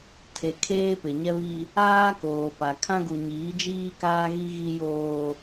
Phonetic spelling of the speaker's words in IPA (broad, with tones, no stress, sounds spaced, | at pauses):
tʰ e˨ kʰ eː˦ p ɪ˨ ɲ ɛ˦ β i˦ | aː˦ k oː˨ p a˨ kʰ ã˦ ɡ u˨ ɲ iː˨˦ d͡ʒ iː˦ k aː˦ ɣ i˦ ɣ i˦ j oː˦